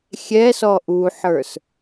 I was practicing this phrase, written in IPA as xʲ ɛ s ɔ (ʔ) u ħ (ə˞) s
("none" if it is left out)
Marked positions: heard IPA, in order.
ʔ, ə˞

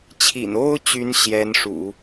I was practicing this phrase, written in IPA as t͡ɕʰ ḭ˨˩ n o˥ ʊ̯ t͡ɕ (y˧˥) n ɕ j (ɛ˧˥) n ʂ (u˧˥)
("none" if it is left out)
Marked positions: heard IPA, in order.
y˧˥, ɛ˧˥, ṵ˨˩˦

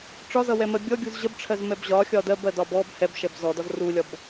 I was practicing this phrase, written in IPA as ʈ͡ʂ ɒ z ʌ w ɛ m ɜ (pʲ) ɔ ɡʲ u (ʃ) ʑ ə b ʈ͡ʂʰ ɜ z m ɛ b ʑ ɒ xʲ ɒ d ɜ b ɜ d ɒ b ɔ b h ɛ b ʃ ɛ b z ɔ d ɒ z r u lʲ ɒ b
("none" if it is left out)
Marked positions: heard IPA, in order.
bʲ, z

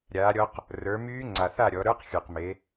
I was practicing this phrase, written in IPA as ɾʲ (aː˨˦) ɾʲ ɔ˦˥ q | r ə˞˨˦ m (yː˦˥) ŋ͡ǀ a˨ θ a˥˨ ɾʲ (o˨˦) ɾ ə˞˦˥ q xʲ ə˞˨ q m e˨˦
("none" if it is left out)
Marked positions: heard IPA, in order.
aː˨˦, yː˦˥, ɔ˨˦

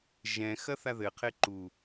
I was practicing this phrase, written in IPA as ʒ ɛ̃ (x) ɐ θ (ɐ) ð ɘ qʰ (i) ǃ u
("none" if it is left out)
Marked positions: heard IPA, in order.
x, a, e

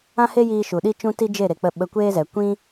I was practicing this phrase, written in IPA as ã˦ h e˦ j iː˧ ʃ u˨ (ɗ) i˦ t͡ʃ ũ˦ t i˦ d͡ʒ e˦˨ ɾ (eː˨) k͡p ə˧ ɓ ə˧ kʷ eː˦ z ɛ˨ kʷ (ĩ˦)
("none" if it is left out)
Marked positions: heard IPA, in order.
ɗ, e˨, ĩ˦

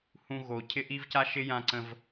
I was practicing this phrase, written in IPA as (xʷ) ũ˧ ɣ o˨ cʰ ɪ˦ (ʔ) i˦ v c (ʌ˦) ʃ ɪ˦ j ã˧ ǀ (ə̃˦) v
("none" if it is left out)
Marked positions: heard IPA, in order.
h, ʔ, a˦, ə̃˧

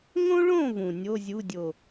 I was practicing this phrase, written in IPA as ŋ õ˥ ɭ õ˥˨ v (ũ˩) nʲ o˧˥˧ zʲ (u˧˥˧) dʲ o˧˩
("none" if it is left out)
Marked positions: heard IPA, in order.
ũ˩, u˧˥˧

